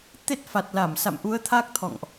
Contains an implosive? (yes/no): no